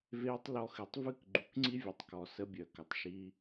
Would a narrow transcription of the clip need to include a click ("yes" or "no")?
yes